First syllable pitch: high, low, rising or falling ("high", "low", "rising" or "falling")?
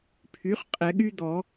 rising